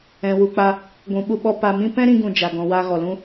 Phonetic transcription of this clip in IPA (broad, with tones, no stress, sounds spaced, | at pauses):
ɛ̃˨ w u˨ k͡p a˧ | ɡʷ ũ˨ ɓ u˧ ɓ ɔ˧ p a˧ m ĩ˦ p ɛ̃˦ ɾ ĩ˧ ɡ ũ˨ d͡ʒ a˨ ɡ ɔ̃˨ w aː˧ ɣ ɔ˨ l ũ˦